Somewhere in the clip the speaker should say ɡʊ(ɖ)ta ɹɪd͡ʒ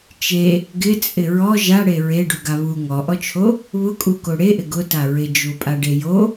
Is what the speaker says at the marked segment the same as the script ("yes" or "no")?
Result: no